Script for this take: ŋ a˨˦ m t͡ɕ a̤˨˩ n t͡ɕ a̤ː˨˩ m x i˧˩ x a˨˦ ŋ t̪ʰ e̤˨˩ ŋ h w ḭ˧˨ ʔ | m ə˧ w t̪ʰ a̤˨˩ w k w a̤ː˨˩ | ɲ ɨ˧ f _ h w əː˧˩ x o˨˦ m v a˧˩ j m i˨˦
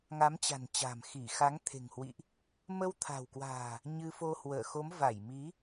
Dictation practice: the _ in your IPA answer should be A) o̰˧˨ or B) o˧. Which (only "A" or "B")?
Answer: B